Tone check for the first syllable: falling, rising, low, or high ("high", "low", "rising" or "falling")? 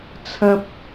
high